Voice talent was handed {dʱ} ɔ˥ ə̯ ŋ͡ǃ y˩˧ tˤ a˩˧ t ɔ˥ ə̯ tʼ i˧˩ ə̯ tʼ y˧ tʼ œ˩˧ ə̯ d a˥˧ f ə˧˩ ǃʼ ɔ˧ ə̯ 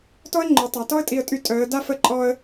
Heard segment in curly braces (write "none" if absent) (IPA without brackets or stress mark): t